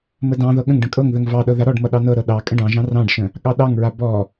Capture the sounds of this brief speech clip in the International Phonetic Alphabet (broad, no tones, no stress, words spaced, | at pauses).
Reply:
mədɑ̃ðɤ ɠə̃ŋɖə̃ kʼɤŋðəŋ vɑɗɤ ðaɾɔɖmʌ ɗɑnɤɾɤ ɗɑ kʼə̃ɖɑ̃ʒɑ̃ rɑ̃ɖʃə̃ | ɠɑɗɑŋɹa bɔ